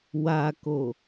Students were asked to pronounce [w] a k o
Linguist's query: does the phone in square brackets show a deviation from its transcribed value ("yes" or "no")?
no